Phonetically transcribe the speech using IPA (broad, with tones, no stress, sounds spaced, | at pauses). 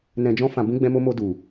n ɛ̃˨ d͡ʒ ɔ̃˧ f ã˨ b ũ˧ ɡ͡b ɛ̃˧ m o˧ m o˧ d u˨